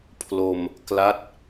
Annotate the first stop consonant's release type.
aspirated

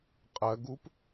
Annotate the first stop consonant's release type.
ejective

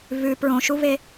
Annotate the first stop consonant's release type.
plain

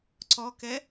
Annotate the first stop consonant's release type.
click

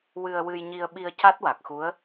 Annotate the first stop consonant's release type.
implosive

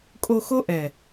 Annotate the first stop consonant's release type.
ejective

